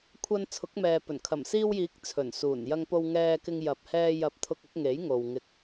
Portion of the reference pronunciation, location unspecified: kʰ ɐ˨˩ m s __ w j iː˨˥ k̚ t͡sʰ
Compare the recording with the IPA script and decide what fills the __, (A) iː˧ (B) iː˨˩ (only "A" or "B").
A